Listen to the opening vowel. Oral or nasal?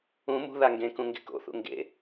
nasal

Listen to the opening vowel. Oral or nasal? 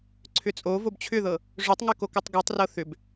oral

